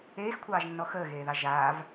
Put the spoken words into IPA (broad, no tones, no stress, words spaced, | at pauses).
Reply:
eːxkʷʰɑːʒnːɔ xəːɣeːðɑ ʒaːv